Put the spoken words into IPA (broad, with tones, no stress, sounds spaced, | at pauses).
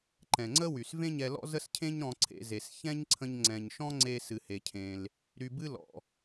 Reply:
ǃ ɛ̃˩ ŋ͡ǀ ə˥ w y˩ s v ẽ˥ ɲ ɛ˧ l ɔ̰˥ z ə˥ s cʰ ẽ˥ ɲ ɾ ɔ̃˧ ǀʰ ḛ˧ z e˩ s ç ɛ̃˥ ɲ ǀʰ ə̃˧ ɲ ŋ͡ǀ ɛ̃˩ ɲ ʃ ɔ̃˥ ŋ͡ǀ e˧ s ɨ˩ h e˩ cʰ ẽ˩ l | ɾ y˧ b ɨ˥ l ɔ̰˩